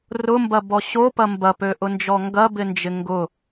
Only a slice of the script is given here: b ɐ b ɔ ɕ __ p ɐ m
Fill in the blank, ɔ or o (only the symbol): o